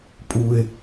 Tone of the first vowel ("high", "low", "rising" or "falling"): low